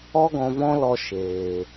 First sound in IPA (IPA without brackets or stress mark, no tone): ɔ